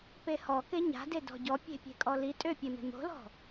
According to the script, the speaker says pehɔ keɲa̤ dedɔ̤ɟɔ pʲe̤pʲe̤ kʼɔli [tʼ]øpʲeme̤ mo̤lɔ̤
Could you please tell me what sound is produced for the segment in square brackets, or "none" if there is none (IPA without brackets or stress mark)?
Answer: tʼ